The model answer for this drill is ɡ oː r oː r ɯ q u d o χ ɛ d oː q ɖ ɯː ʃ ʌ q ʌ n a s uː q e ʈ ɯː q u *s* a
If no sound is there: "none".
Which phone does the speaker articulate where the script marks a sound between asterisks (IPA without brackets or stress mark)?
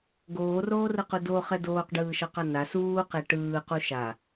ʃ